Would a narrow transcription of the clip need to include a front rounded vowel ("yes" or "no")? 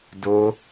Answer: no